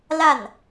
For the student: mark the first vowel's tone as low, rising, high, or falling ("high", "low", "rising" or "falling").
falling